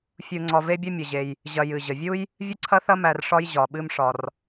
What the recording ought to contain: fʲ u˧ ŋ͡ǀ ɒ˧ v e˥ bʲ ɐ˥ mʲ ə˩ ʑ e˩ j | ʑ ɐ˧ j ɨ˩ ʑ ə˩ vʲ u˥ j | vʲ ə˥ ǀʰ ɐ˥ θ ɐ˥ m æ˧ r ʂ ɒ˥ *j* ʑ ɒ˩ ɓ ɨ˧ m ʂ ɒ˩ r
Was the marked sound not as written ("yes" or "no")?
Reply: no